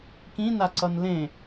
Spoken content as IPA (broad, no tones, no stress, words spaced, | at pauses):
kĩnaǀʌn lẽ